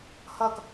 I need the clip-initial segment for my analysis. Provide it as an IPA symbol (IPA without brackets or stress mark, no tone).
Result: h